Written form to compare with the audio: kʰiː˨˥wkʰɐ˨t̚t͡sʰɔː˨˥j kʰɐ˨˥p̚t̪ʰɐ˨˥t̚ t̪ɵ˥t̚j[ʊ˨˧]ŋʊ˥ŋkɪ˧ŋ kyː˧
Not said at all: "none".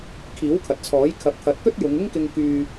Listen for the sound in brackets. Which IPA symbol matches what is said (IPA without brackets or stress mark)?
ʊ˨˧